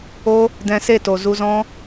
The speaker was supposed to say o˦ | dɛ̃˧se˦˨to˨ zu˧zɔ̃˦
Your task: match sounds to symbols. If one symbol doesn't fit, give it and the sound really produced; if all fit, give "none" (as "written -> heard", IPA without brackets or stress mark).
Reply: none